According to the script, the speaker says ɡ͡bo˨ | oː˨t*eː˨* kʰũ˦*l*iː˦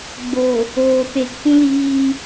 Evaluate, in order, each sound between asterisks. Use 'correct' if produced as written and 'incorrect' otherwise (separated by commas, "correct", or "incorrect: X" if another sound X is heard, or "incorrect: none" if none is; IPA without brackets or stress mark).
incorrect: e˨, correct